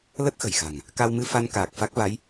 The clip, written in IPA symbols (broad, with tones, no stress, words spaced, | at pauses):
lə˦˥t̚ xə̤˨˩jxa̤˨˩ŋ | ka˧wmɨ˧ fa˧nkaː˨˩k̚ fa˦˥k̚va˨˦j